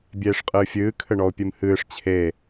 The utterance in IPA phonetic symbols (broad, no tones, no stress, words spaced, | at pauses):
bʲeːʂqʼɨːfʲɨː kʰɘɳɔo̯pʲɨmhɨːʂ t͡ɕʰe